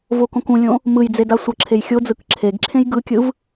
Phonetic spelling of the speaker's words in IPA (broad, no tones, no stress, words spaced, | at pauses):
vokõkũlʲõ | mɯjd͡ze dasʷʌǁʰej xʲod͡zɯk ǁʰeɡǁʰẽj ɡɯkʲɯv